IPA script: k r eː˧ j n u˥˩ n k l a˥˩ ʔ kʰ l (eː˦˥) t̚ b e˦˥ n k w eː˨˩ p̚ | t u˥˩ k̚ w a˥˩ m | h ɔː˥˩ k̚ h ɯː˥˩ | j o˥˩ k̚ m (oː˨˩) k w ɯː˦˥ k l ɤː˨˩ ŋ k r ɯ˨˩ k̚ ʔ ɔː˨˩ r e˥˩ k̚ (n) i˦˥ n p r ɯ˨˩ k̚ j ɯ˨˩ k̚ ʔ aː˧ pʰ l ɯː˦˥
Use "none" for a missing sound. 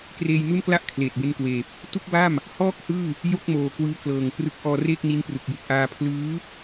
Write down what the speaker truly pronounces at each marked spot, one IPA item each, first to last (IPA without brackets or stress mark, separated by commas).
eː˨˩, oː˨˩, n